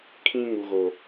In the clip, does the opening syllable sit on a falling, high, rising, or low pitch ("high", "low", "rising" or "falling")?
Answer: high